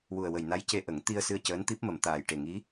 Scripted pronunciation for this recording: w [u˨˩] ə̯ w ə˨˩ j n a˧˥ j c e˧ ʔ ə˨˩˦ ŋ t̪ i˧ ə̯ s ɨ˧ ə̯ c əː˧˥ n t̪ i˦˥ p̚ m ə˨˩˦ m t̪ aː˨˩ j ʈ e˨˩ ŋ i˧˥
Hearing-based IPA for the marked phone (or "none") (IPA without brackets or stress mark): u˨˩